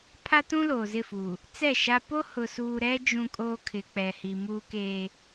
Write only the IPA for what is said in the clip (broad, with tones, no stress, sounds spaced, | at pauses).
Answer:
pʰ a˦ t ũ˦ l oː˨ z ɪ˦˨ f uː˨ | t͡s ɛ˦˨ ʃ a˦ p o˦ h ʊ˨ s uː˨ ɾ ɛ˦ d͡ʒ ũ˦ kʼ oː˦ kʰ ɪ˨ k͡p ɛ˨ h i˨ m uː˦ k eː˦